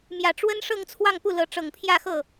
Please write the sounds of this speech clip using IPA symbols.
m j ä˨˩ ʈ͡ʂ w ə˥ n ʂ ɤ˥˧ ŋ t͡sʰ w ɑ˥˧ ŋ p u˥˩ l ɤ˧˥ ʈ͡ʂ ɤ˨˩ ŋ pʰ j ä˥˧ x ɤ˥˩

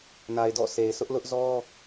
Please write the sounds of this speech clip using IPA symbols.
n a˨ ɪ̯ d ɔ̰˦˨ sʰ e˨ ɪ̯ s ʊ˦ ʔ l ʊ˦ ʔ z ɔ˦

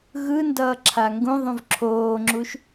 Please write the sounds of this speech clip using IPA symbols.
ɣ ɯ n d ʌː ǁʰ a ŋ ɡ ũ ðˤ ũ v ǁʰ oː ŋ͡ǁ u ʃ

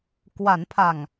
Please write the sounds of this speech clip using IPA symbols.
k w a˩˦ n pʰ a˨˩ ŋ

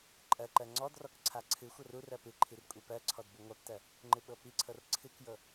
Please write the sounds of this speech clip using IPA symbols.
ǃʼ ɜ ǃ ɜ ŋ͡ǀ ɔ d r ɔ k ǀʰ a ǀʰ ɨ xʷ ɤ r u r ɜ p ɨ ǃʰ i r kʷʼ i p ɜ ǀʰ ɔ d b u ŋʷ a p t ɜ | ŋ͡ǃ ɨ ɓ ɤ p i ǀʰ ɤ r ǀʰ ɨ k j ɤ

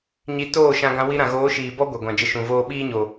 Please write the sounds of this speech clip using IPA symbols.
ɲ i˧ t oː˦˨ ʃ ã˧ ɡ ã˧ w i˧ ɾ ã˨ ɣ oː˨˦ ʃ iː˨ b ɔ˦ ɡʷ ɛ˨ ɡʷ ã˨ d͡ʒ ə˧ ʃ ũ˨ v oː˦ ɓ iː˦ ɲ o˨

